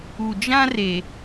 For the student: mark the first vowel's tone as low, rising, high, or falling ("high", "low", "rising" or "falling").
low